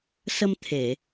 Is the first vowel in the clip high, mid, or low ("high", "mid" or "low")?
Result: mid